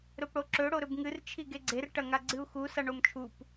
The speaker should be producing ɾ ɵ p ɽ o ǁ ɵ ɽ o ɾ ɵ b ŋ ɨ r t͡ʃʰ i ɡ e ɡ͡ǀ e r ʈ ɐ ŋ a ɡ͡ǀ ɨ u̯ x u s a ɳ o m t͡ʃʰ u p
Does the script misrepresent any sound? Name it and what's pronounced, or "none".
none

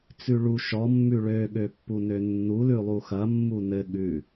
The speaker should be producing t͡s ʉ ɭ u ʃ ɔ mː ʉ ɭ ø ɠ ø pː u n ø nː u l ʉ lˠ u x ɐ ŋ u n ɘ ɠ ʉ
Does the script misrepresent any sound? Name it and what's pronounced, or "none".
ŋ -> mː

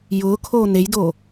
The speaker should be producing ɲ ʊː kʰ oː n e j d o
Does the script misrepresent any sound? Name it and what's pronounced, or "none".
ɲ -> j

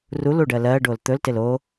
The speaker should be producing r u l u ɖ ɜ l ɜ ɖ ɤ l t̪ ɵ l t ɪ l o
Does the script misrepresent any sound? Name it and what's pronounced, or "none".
ɤ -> o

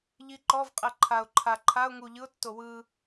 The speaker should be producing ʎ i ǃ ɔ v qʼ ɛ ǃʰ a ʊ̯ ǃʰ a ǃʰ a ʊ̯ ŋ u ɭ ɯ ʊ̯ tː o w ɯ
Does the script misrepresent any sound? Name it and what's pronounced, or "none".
ɭ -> ʎ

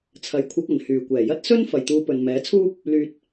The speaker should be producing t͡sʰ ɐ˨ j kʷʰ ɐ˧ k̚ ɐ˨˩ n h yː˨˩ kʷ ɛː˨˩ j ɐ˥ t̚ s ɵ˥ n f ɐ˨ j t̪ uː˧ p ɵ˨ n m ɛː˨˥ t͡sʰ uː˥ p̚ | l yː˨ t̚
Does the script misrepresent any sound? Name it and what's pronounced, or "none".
none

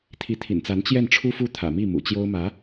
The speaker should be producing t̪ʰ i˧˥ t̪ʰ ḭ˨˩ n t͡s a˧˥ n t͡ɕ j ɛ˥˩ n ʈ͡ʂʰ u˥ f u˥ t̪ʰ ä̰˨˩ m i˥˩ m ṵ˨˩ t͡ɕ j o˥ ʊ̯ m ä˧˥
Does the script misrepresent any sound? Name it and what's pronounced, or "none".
none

